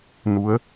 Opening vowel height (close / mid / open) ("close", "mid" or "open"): close